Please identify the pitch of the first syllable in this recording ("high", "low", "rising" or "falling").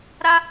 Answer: high